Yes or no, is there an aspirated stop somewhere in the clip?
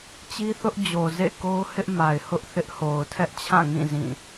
yes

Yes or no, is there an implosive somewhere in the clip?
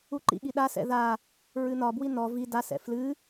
yes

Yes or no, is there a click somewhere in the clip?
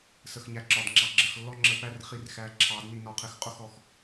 yes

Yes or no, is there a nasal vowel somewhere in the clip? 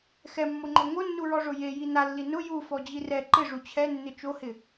no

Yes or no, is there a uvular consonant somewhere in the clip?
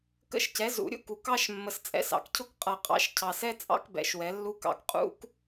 yes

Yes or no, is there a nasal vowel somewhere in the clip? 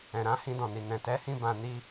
yes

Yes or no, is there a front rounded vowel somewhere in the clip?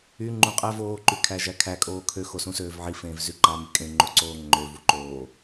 yes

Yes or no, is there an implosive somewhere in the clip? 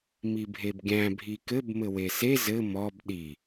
yes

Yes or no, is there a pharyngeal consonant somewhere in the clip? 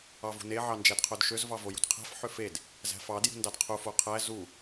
yes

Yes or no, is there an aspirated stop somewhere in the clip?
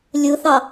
no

